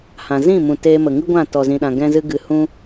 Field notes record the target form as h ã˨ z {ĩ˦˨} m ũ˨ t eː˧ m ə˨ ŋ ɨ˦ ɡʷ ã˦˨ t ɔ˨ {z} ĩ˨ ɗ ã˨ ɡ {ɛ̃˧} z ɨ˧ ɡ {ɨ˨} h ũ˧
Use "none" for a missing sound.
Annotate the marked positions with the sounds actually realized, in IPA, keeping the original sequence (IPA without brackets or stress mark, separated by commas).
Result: ĩ˦˨, z, ɛ̃˧, ɨ˨